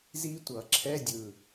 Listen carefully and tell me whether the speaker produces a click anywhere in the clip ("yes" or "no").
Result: yes